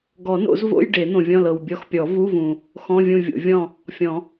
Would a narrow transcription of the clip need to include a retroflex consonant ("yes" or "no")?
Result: yes